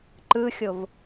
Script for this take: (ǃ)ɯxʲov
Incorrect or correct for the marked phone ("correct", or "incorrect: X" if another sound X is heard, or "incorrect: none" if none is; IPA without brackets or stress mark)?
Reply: correct